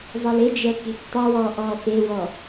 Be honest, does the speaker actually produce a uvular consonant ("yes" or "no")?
no